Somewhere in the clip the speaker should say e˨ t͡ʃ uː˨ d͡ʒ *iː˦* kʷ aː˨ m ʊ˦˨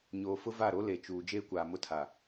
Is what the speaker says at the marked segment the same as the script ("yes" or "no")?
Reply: no